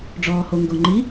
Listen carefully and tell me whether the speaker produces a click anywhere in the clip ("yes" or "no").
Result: yes